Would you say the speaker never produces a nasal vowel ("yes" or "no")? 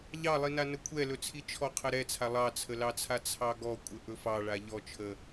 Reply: yes